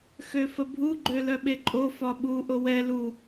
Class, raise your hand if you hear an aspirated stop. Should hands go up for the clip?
no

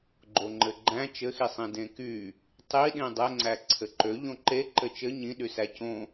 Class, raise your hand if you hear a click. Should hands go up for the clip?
yes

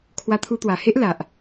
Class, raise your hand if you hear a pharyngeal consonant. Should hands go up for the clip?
no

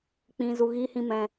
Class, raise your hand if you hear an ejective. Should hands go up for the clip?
no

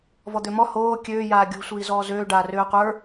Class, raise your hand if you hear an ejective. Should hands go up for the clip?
no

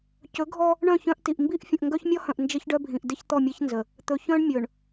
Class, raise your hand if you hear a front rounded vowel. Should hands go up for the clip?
yes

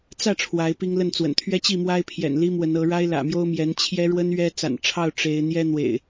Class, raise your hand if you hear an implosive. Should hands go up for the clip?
no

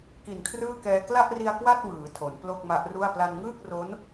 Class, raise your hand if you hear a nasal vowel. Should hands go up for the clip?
no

